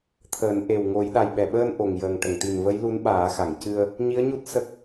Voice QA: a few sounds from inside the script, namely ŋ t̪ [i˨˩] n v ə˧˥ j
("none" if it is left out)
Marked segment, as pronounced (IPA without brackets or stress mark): i˨˩